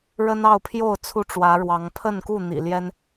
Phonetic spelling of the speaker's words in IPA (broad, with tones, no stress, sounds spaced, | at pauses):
ɻ ə˦ n ɑ˥˨ ʊ̯ pʰ j o˥˨ ʊ̯ t͡sʰ u˦ ʈ͡ʂ w ä˨˦ ɻ w ɑ˨˦ ŋ pʰ ə˥˨ n k u˥˨ n̪ ḭ˨˩ l j ɛ˦ n